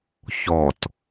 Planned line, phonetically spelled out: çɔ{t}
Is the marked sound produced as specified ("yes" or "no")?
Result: yes